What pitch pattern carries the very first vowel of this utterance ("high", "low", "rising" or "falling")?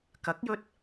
rising